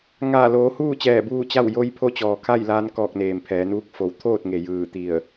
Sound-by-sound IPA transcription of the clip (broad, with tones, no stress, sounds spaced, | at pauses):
ŋ aː˧˩ l oː˩˧ h uː˥˨ t͡ɕ ɛː˧˩ b uː˥˨ t͡ɕ a˥˨ w j o˧ j pʰ o˧ t͡ɕ ɔː˩ kʰ a˥˨ j l aː˧ n k ɔː˧˩ k̚ n eː˩ m pʰ ɛː˩˧ n uː˧˥ k̚ f o˩˧ w t̪ʰ oː˥˨ t̚ ŋ e˩ j ɯː˧˩ t̪ i˧˩ ə̯